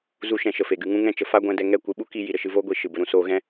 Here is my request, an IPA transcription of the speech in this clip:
z u˦ ʃ ɛ̃˧ ʃ ə˨ f e˨ ɡ ɨ˧ ŋ ũ˦ ŋ ɛ̃˦˨ t͡ʃ ə˧ f a˦ ɡʷ ɛ̃˧ d ɛ˧ ŋ ɛ˦˨ kʷ ɨ˧ ɓ u˦ k i˧ j i˨ ɾ ə˦ ʃ ɨ˧ v oː˦ ɡʷ i˨ ʃ ɨ˨ b ə˧ ɾ ũ˦ s oː˧ ɣ ɛ̃˦

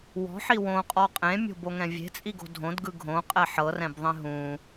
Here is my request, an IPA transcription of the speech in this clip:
w ɔ̤ ħ i w õ qʼ ɔ qʼ ẽ mʲ o̤ b o ŋ ɛ̃ vʲ e̤ t͡sʼ i ɡ o̤ dʱ õ d ɡ ɯ ɡʱ õ qʼ ɛ ħ ɤ r ɛ̃ b ðˤ ẽ ɦ ũ

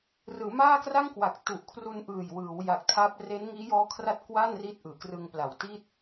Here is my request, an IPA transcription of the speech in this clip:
r ɯː˩˦ m aː˥˩ k r a˥˩ ŋ k w a˨˩ k̚ t u˨˩ ʔ kʰ r u˧ n ʔ ɯː˨˩ j w ɯː˩˦ w j a˨˩ k̚ tʰ a˦˥ p̚ r e˦˥ n ŋ iː˦˥ j ɔː˦˥ kʰ r a˥˩ t̚ k w a˥˩ n r i˦˥ t̚ ʔ ɯː˩˦ k r ɯ˧ ŋ p l a˨˩ w t iː˥˩ t̚

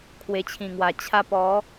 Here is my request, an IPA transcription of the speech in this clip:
kʰ w e˨˩ t͡ɕʰ ĩ˨˩ ŋ w a˨˩ t͡ɕʰ a˧ p ɔ˨˦

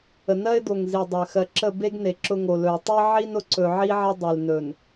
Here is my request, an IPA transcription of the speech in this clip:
ə˨ n ɜ˦ ɪ̯ d̪ o˨ ŋ z i˨ dˤ ɜ˨ x ɜ˨ ǁ ə˦˨ b e˦ ɡ n e˨ ǁ ʊ˦ ŋ o˨ l ɵ˨ ɪ̯ tˤ i˦ ʕ i˦ n ʊ˨ ǀ ɵ˨ ʕ i˦ ʕ ɐ˦ dˤ e˨ l n ɵ˨ n

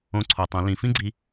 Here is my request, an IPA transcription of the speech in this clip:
õ˧ ǀʰ o˩ tˤ õ˩˧ l ĩ˩˧ f ĩ˥ ɡ͡ǀ i˧

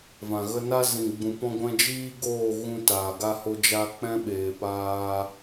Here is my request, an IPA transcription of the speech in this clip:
v ã˨ ɣ ə˧ n a˦ z ĩ˨ ɡ͡b ũ˨ p ɔ̃˧ ɡʷ ɛ̃˧ d͡ʒ iː˦ ɡ oː˦˨ ɣ ũ˧ t aː˨ ɡ a˧ h o˧ d͡ʒ a˧ k͡p ɛ̃˦ ɓ eː˨ p aː˧

